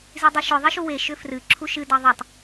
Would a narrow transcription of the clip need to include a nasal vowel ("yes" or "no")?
no